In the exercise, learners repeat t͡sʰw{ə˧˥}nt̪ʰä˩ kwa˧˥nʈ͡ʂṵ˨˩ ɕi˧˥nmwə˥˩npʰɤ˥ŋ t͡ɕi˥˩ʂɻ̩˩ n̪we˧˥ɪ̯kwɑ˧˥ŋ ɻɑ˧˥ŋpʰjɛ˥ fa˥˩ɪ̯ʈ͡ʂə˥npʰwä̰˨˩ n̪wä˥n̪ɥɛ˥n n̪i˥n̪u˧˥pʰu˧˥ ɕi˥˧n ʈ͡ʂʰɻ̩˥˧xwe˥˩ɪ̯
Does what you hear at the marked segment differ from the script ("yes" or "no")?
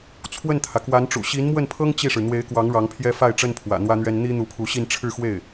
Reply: yes